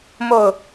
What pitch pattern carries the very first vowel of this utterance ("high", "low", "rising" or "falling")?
falling